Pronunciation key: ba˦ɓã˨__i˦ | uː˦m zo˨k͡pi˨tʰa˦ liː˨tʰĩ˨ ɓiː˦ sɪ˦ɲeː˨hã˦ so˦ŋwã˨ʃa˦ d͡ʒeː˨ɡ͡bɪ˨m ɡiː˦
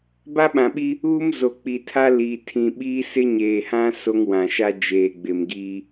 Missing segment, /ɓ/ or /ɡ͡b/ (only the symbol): ɓ